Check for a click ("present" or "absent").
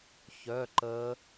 present